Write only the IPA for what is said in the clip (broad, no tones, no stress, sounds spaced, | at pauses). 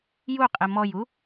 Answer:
j u qʼ e m ɔ j u